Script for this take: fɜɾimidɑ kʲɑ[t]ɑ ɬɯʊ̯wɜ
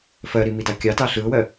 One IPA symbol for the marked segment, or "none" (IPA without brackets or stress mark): t